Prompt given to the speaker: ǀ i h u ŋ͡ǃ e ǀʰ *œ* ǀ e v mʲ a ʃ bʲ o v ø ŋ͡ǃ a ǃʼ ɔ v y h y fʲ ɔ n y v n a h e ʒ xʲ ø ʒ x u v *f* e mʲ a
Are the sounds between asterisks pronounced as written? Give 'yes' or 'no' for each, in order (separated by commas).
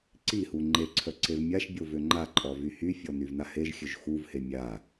yes, no